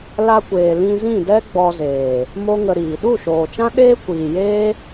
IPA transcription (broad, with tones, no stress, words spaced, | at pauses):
la˧kʷeː˨ lĩ˧zĩ˦˨dɛ˦ ɡ͡bɔ˧zeː˨ | mo˦ŋə˧ɾiː˨ ɗu˦˨ʃoː˨t͡ʃã˦ ɗeː˦kʷiː˨ jeː˦